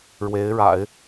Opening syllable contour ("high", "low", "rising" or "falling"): rising